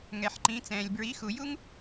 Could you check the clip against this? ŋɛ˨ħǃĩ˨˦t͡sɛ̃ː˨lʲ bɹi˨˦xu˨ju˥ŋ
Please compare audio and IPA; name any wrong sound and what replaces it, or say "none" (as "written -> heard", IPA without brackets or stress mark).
none